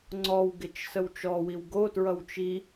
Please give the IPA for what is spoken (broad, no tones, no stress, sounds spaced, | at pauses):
ŋ͡ǀ ɔ w ɡ ɪ t͡ʃ s ə w t͡ʃ ɔ w i w ɡ o t ɹ ʌ w t͡ʃ i